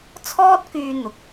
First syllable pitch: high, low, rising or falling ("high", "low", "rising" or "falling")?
high